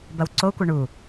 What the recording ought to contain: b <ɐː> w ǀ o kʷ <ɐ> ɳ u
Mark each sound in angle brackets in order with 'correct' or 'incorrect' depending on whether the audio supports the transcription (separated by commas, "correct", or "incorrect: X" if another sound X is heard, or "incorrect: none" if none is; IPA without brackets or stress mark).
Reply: incorrect: ɐ, correct